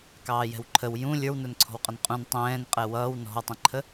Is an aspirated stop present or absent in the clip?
present